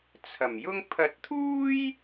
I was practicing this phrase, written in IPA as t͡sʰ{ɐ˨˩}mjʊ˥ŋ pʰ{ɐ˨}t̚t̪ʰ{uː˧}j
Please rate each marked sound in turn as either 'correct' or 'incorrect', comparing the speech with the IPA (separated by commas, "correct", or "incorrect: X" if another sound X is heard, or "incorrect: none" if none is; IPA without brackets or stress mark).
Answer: correct, correct, incorrect: uː˥